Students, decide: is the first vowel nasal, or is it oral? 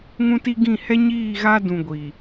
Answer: nasal